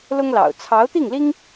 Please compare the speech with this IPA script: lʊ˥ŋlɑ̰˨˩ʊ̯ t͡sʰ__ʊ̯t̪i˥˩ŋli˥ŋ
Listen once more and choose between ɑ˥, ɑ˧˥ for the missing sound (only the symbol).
ɑ˧˥